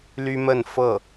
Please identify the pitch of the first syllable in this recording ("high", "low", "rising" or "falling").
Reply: high